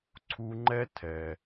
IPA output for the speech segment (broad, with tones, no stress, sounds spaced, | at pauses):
ǀʰ u˧ ŋ͡ǃ ɛ˦ tʰ ɛ˨